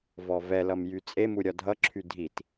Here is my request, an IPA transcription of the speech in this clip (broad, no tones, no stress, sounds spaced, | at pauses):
v ɔ v ɛ l ʌ m j y t͡sʼ e m u ɾʲ ɒ dʱ ʌ ǁʰ y dʱ i t